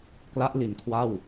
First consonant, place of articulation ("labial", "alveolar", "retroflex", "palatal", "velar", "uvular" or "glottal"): velar